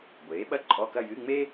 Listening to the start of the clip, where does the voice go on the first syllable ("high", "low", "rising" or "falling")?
rising